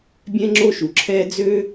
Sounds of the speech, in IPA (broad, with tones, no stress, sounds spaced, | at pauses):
bʲ ɛ̃˥ ŋ͡ǁ o˥ ʃ u˩ ǁʰ ɛː˥ d͡z ø˥